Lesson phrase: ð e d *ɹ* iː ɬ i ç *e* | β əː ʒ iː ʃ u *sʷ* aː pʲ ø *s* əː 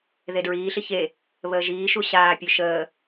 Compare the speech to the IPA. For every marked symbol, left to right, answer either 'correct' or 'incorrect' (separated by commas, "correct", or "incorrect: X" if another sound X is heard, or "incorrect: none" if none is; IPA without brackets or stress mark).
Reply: correct, correct, incorrect: ɕ, incorrect: ʃ